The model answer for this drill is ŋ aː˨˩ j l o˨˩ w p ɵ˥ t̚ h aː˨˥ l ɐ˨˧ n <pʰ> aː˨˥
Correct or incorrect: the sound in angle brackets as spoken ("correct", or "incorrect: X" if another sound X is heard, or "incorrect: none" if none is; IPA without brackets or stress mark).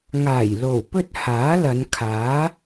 incorrect: kʰ